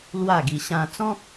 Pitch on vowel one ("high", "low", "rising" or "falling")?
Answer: falling